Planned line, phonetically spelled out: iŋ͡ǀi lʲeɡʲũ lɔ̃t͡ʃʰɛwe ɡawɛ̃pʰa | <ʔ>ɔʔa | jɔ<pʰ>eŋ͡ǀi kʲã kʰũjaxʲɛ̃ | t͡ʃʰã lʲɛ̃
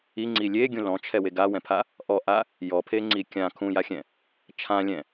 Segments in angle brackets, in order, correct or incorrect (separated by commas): correct, correct